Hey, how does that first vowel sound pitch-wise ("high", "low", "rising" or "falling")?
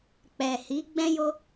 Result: low